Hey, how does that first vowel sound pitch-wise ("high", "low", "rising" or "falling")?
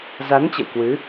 rising